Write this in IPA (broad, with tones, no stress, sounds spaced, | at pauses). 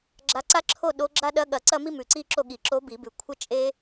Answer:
ɡ͡ǁ a˧˥ ǀ a˥ ǁʰ o˥˧ ɗ o˧˥ ɡ͡ǁ a˥ ɗ ɐ˧˥ ɠ ɐ˨˩˦ ǀ ɐ˥˧ m i˥ m ʉ˨˩ ǀ i˥˧ ǁ o˥˧ ɠ i˨˩ ǁ o˧˥ b i˨˩˦ b ʉ˨˩ kʷʰ ɐ˥ t͡ʃʼ e˥